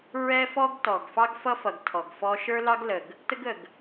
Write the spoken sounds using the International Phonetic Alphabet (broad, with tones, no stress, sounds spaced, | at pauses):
ɹ ɛ˦ f ɔ˦ ɡ t ɔ˨ ɡ f ɑ˦ ɡ f ʌ˦ f ʌ˨ ɡ tʰ ɔ˨ ɡ f ɔ˦ ʃ ə˞˦ l ɑ˦ ɡ l ə˨ ɡ | t ə˦ ɡ ə˨ ɡ